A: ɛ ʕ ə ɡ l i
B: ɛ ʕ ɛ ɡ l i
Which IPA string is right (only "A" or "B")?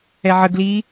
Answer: A